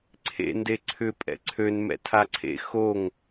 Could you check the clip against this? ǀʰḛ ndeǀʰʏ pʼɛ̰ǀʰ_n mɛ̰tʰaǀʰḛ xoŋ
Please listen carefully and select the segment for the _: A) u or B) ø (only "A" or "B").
B